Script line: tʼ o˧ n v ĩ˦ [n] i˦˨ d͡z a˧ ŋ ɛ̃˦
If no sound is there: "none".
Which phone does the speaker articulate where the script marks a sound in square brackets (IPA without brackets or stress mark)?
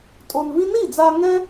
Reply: n